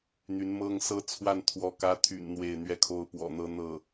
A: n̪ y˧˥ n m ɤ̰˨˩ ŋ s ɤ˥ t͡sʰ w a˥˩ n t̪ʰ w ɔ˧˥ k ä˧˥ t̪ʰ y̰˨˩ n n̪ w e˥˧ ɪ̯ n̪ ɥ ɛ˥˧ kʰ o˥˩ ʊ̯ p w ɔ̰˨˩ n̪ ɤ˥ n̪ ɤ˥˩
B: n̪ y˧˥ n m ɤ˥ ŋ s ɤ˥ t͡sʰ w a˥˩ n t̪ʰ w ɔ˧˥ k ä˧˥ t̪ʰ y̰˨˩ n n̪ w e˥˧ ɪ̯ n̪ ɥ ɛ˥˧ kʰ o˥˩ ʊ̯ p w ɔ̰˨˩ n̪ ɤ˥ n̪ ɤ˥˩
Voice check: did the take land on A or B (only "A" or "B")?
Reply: B